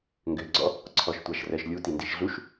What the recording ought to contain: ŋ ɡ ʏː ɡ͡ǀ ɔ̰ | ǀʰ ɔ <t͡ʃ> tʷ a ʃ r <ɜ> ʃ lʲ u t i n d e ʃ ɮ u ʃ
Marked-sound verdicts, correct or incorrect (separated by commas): incorrect, correct